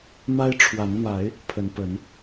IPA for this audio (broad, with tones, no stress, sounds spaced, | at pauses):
m a˦ ɪ̯ ʈ͡ʂʰ w a˨˦ n m a˨˦ ɪ̯ | pʰ ə˨˦ n p ə˨˦ n